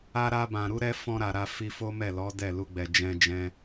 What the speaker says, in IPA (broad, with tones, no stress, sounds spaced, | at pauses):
a˧ ɾ a˧ b ã˨ ɾ u˨˦ ɾ ɛ˧ f ɔ̃˧ ɾ a˨ ɾ a˧ f i˧ f o˦ m ɛ˦˨ l ɔ˨˦ d ɛ˦˨ l u˧ ɡ͡b ɛ˨ d͡ʒ ɛ̃˧ d͡ʒ ɛ̃˦